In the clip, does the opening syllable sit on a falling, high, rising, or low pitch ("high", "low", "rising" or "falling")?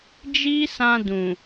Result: high